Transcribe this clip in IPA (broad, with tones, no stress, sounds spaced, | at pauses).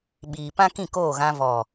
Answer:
ɓ iː˨ p ã˦ k ĩ˦˨ k oː˦˨ ɣ ã˧ v ɔ˨